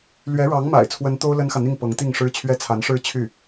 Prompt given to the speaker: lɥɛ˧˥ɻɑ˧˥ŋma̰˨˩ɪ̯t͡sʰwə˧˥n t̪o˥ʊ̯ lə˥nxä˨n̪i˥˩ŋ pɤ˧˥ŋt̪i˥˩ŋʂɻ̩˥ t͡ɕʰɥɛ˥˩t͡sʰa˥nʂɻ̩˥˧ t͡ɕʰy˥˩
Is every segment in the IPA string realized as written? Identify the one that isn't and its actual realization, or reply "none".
a˥ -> a˧˥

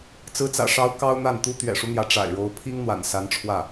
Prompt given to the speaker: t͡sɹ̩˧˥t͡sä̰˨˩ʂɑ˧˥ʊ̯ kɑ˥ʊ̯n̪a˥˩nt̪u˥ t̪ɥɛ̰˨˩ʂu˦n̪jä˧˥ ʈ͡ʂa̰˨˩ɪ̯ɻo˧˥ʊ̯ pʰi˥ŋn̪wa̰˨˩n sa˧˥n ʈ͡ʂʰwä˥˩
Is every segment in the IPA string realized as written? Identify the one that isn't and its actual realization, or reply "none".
none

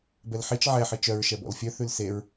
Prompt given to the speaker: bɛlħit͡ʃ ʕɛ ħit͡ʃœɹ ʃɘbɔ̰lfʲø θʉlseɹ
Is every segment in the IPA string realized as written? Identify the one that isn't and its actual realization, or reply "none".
ɘ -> ɛ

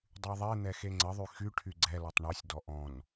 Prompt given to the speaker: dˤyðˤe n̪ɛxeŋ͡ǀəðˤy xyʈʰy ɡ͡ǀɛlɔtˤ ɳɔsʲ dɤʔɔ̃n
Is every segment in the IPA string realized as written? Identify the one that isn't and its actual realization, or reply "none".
ɤ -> ɔ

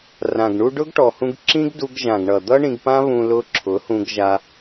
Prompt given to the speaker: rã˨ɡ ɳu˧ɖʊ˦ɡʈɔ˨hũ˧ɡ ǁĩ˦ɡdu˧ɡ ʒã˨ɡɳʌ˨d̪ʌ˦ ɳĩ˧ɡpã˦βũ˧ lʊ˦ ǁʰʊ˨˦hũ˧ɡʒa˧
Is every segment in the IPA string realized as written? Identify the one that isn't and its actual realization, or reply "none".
none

